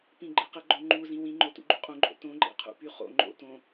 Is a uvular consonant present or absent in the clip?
present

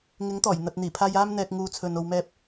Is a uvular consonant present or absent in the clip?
absent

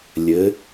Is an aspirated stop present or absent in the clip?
absent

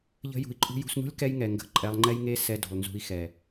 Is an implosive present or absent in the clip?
absent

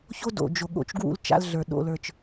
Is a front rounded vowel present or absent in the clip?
absent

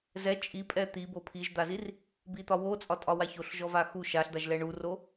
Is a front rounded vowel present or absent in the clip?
absent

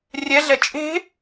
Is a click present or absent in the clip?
absent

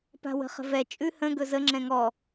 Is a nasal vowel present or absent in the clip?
present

